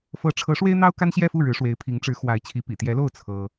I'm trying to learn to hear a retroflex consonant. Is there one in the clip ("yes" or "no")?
yes